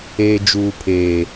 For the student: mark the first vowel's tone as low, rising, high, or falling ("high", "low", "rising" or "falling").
high